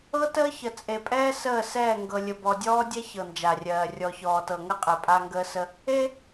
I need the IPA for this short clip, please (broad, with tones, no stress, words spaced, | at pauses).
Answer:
ɤ˦təː˦çə˨ t͡sʼe˨pʼɛː˦ səː˦˨sɛː˦˨ŋɡɤ˨ lʲə˨bɔ˨dʲɔː˦dʲɛ˦ çɤ˨nd͡ʒa˨rʲɜː˨ rʲɔ˨çɔː˨tɤ˨ŋə˦ qʼe˨pʼa˦ŋɡəː˦sə˦ | e˦